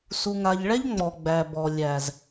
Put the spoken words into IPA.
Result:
s u˨ ŋ a˨ ʎ ɭ ɛ˦ ʎ ŋ͡m ɔ˨ ɡ͡b æ˨ b ɔ˨ lʲ æ˨ z

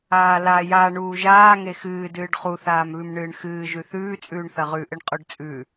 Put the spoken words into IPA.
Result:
aː l a j a ɳ uː ʒ aː ŋ e x ɨː d ɨː ɖ χ u θ aː m β ʉ m ɳ ɨː ɳ x ɨː ʒ ʉ θ ʉː t͡sʼ ʉː ɳ θ ɐ ʁ ʉ ʔ ɨ ɳ qʼ o ɖ t͡sʼ ʉ

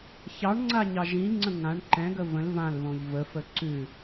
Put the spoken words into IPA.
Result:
ç ɑ ɳ ŋ͡ǀ a ɲ ɑ ʒ ĩ ŋ͡ǀ ə̃ ŋ ã ɳ ǃ ɛ̃ ɡ ə v ə̃ l v ã l β õ ʎ v ə f ə ǀ ʉ

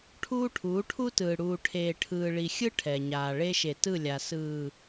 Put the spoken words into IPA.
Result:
ʈʰ uː˦ ʈʰ uː˨˦ ʈʰ u˦ t ɯː˨ ɽ uː˨ ʈʰ eː˨ ʈʰ ɯː˨ ɭ i˨ xʲ ɯ˦ ʈʰ ɛ˨ ɲ aː˨ ɭ e˦ ʃ e˨ t ɯ˦˨ lʲ a˨ s ɯː˨

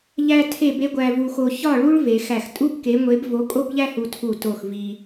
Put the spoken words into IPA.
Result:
ʎ æ˦ tʰ e˦˨ b e˦ ɡʷ æ˦ v u˦ x o˦ ç ɒ˦˨ ɭ u˦ ɭ v e˨˦ x æ˦˨ x tʼ u˦ b k e˨˦ ŋʷ e˨˦ b v o˨˦ kʼ o˦ b ʎ æ˦ h u˦ tʰ u˦˨ t o˦˨ x v i˦

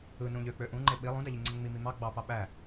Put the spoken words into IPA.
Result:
ɯ n ũ ʎ ø k͡p ø ʔ ũ ŋ͡ǃ e ɓ i lˠ ũ d æ ʎ i ŋ͡ǀ e ŋ͡m i m i m ɑ ɡ͡b ɑ p ɑ ɓ æ

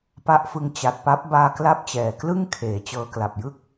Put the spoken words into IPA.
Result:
p a˦˥ ʔ f ɯ˧ ŋ t͡ɕ a˨˩ t̚ p a˦˥ p̚ b aː˧ k l a˦˥ p̚ t͡ɕ ɛː˨˩ k l ɯ˥˩ ŋ kʰ eː˨˩ t͡ɕ ɤː˧ k l a˨˩ p̚ j ɯ˥˩ k̚

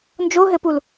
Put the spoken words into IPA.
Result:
n d͡ʒ o ɦ ɘ p u l

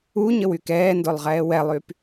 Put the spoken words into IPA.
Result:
u ɲ ə w y k ɛː n d o lˠ ʁ ɛː w ɛ lˠ y p

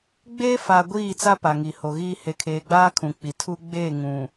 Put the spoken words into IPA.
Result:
ɡ͡b eː˦ f a˨ ɡʷ iː˦˨ t͡s a˦ p a˨ ŋ i˨ h o˨ ɣ iː˦ h e˨ kʰ eː˨ ɡ͡b aː˦ kʰ ũ˨ k͡p i˨ tʰ u˦ ɡ͡b eː˦˨ ŋ ũ˨

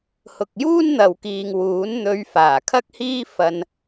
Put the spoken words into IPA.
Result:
h ʊ˨ k̚ j uː˥ n n̪ ɐ˨ w k iː˨ ŋ w uː˨˥ n n̪ ɵ˧ ɥ f aː˨˩ kʰ ɐ˥ k̚ h iː˥ f ɐ˧ n

